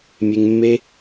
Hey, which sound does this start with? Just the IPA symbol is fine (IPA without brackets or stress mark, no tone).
mʲ